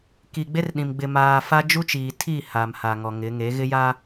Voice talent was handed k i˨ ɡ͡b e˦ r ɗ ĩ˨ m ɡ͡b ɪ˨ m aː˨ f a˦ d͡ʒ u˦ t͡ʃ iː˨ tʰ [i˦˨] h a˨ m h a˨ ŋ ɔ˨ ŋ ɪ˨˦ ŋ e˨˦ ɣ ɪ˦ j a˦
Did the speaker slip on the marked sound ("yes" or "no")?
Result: no